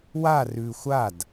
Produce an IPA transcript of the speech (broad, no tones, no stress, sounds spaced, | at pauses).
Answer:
w a r ʉ xʷ a d